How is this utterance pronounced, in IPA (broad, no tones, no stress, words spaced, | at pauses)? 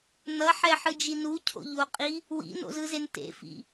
nʌħɛħɯd͡ʒi nucʰo̰ʎoqʼi | wḭno̰zɯzen tḛfḭ